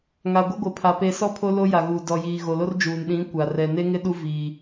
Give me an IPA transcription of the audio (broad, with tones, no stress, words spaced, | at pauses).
ŋa˨ɡʷɪ˦ɡʷɪ˨pʰa˨ pe˨ sɔ˦ pʰo˦lo˦ ja˨ɣu˨ dɔ˨jiː˨ ɣo˨lo˦rd͡ʒuː˨n ɗĩ˨˦ kʷa˨ rɛ˨ne˦ŋɪ˦ ɗu˦viː˨